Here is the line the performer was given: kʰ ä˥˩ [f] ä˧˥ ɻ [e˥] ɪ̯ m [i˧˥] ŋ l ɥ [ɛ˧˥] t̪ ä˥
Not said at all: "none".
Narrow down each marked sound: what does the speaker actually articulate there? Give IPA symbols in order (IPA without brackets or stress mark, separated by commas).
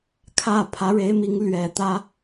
pʰ, e˧˥, i˧˥, ɛ˨˩